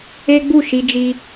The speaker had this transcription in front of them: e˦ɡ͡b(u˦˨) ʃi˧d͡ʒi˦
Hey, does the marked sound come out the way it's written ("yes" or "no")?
yes